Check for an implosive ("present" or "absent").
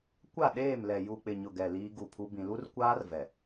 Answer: present